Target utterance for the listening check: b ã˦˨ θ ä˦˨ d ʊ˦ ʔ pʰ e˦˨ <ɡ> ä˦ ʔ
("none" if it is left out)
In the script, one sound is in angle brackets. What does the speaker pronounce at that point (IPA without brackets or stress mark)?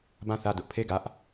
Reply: ɡ